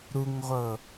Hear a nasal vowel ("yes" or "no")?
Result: no